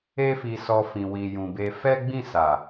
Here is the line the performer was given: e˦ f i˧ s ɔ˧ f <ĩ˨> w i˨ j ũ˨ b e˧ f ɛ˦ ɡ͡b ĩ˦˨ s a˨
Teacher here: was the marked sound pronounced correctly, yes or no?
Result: yes